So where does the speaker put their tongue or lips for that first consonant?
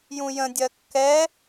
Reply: palate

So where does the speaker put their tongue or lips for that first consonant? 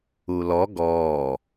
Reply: tongue tip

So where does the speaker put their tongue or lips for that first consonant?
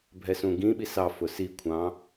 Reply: lips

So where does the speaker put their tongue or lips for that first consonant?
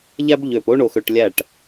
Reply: palate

